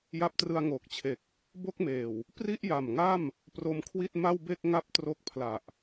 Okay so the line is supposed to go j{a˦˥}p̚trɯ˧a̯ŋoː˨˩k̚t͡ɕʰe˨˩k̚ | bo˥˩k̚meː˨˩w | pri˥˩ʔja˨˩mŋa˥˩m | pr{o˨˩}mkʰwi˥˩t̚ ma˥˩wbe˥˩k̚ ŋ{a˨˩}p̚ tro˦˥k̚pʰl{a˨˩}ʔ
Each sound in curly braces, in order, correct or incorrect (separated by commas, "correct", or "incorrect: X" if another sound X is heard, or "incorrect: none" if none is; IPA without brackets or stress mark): correct, incorrect: o˦˥, incorrect: a˦˥, correct